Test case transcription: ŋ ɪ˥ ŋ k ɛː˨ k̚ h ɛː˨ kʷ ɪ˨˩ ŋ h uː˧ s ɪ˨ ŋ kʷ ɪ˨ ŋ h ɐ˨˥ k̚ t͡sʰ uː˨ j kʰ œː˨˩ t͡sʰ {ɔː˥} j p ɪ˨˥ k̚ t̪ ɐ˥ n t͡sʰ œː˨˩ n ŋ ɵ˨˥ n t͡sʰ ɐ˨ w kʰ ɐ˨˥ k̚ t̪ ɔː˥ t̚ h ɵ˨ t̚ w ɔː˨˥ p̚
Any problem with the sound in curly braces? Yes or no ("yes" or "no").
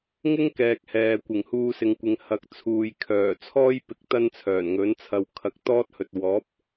no